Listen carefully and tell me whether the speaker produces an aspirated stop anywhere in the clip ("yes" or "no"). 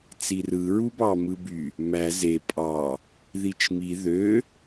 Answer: no